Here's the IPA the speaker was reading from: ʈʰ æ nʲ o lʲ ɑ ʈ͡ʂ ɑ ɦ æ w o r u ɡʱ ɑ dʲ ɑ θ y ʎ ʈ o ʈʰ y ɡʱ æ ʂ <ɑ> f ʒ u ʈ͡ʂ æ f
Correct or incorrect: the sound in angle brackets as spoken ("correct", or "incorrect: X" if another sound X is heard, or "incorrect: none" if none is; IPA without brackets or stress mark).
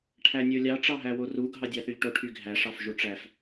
correct